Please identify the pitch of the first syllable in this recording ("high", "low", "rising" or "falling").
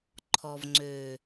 low